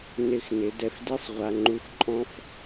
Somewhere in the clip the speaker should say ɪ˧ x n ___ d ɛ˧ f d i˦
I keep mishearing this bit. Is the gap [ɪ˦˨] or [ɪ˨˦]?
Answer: ɪ˨˦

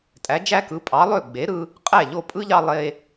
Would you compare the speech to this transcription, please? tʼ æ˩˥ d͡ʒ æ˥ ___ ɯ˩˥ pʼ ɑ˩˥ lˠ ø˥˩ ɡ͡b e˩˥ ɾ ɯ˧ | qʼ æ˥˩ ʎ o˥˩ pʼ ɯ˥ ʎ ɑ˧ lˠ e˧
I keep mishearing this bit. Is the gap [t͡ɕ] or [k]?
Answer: k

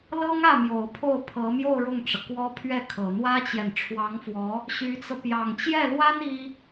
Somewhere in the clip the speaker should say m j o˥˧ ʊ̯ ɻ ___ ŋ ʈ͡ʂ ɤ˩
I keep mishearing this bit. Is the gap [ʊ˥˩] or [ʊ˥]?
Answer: ʊ˥˩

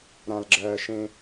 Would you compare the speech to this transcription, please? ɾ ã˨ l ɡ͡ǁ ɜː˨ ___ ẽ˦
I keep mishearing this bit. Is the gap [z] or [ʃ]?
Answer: ʃ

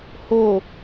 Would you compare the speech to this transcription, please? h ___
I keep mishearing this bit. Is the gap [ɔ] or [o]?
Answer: o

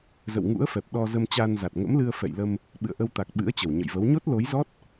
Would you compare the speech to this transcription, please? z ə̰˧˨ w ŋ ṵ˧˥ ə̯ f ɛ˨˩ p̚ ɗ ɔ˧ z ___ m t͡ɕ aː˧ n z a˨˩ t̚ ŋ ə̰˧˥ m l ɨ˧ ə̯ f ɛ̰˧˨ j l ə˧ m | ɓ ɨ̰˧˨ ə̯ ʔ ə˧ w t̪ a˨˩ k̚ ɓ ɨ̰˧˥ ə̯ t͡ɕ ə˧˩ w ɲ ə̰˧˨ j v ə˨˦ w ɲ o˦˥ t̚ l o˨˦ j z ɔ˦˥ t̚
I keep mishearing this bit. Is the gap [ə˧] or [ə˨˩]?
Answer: ə˧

